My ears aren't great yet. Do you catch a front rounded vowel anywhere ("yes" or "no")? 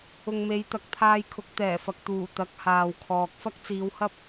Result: no